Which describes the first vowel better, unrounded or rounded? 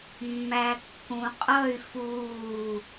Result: unrounded